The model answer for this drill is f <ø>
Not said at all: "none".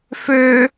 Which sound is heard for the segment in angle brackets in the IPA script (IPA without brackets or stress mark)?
ø